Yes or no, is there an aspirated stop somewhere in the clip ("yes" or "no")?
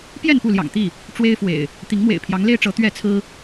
yes